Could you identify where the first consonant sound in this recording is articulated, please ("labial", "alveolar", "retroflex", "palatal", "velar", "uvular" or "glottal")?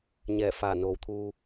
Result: palatal